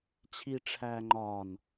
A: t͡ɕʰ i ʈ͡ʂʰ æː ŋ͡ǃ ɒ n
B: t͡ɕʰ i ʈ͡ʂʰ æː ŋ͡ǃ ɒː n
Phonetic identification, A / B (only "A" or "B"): B